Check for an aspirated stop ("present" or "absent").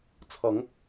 present